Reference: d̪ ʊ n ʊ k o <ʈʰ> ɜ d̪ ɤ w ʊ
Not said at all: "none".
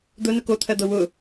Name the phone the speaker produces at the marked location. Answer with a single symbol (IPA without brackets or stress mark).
t̪ʰ